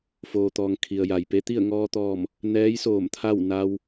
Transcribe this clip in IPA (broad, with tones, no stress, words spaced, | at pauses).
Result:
foː˩t̪ɔː˩ŋ kʰi˩ə̯ja˩jpe˧˥ t̪i˥˨ə̯ŋɔː˧t̪ɔː˧˩m | nɛː˧˥jsoː˧˩m t̪ʰa˥˨wna˧w